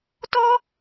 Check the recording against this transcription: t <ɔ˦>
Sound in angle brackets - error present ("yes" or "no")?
no